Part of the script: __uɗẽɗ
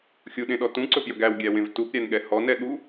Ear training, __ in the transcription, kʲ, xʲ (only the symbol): xʲ